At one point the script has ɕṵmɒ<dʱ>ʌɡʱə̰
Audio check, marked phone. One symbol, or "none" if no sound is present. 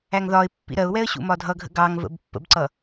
dʱ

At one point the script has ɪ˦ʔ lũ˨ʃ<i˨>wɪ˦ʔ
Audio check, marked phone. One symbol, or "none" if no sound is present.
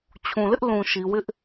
i˨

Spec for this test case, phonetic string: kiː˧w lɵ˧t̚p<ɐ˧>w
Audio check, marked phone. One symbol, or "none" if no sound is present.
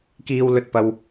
ɐ˧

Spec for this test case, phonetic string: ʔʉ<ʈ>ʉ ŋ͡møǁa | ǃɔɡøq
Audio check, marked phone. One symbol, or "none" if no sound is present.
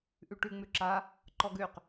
ʈ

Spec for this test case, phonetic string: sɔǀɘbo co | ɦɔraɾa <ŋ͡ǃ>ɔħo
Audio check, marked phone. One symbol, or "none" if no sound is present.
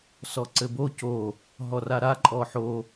ǃʼ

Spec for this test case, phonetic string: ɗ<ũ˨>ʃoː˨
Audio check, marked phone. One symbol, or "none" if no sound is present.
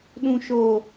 ũ˨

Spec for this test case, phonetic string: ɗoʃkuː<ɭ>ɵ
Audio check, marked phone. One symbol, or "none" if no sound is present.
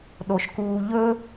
ʎ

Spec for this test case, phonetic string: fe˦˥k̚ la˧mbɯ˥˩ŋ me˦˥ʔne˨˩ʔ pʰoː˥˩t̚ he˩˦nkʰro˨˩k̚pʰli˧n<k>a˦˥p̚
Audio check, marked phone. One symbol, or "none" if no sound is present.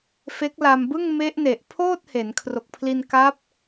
k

